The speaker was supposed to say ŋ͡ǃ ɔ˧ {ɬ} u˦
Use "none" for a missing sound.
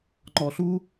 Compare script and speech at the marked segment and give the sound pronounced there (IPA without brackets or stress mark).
ɬ